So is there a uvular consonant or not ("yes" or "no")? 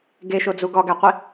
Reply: yes